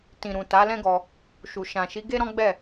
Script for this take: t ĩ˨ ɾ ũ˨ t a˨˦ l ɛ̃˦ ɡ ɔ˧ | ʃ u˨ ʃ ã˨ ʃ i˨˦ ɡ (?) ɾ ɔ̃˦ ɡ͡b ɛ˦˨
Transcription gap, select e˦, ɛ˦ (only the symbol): e˦